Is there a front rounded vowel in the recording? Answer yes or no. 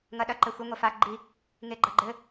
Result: no